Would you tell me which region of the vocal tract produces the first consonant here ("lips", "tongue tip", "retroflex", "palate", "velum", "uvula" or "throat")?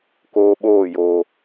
velum